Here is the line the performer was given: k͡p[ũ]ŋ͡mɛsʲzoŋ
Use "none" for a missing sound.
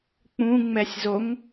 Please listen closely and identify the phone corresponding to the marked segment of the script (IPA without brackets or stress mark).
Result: ũ